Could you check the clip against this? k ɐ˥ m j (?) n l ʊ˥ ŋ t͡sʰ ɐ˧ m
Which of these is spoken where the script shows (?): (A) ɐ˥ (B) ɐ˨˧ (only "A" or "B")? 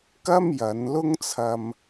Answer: B